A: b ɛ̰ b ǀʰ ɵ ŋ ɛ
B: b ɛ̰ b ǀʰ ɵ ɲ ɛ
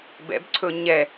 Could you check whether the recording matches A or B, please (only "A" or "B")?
B